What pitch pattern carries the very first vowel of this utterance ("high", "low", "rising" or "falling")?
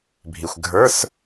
low